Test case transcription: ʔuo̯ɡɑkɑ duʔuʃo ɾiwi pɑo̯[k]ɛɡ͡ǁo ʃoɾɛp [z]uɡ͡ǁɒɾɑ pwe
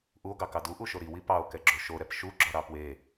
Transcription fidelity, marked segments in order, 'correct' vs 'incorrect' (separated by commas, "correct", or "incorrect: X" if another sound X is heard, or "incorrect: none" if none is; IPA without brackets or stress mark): correct, incorrect: ʃ